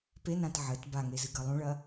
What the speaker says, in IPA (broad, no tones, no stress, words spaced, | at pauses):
penãt ʕɘt baŋezɨɡɐ lˠũɭɐ